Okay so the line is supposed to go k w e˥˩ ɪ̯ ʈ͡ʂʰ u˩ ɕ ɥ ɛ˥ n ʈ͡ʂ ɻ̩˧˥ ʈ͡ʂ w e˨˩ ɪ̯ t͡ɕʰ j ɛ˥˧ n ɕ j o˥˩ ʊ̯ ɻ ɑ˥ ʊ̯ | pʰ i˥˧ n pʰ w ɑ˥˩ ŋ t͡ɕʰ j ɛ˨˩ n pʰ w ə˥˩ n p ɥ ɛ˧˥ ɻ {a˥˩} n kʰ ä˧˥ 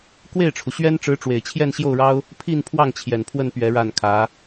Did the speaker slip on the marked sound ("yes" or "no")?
no